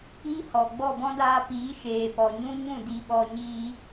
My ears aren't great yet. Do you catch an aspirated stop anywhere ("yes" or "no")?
no